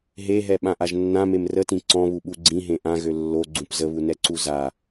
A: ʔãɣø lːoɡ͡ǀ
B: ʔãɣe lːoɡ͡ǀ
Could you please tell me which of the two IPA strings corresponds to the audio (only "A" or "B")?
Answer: A